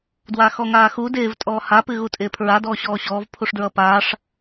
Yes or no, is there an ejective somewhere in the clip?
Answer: yes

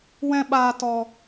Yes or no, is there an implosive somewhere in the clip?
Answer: yes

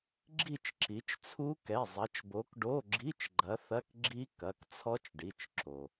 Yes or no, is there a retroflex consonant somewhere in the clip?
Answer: yes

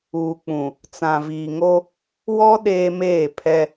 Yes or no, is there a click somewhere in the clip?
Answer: no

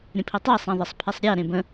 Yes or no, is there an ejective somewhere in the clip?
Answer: no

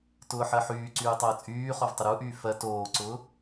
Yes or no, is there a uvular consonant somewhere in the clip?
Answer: yes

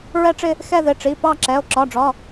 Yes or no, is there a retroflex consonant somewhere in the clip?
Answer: yes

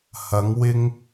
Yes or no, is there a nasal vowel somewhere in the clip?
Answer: no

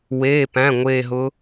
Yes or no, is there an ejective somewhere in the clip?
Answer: no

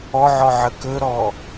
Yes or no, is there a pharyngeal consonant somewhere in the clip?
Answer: yes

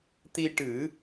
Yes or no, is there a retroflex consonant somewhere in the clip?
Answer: yes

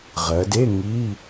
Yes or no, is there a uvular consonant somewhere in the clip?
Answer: yes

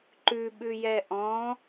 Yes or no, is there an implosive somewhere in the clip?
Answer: yes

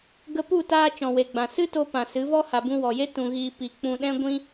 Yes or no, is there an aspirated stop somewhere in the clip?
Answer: no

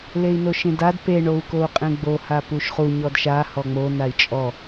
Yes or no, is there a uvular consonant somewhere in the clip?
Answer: yes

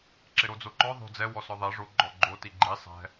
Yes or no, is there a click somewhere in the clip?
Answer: yes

